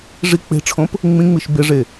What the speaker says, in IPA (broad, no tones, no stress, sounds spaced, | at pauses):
ʐ i k͡p e̤ ʈ͡ʂʰ õ p | ŋ͡m ĩ ŋ͡m i ʃ b ɪ ʐ e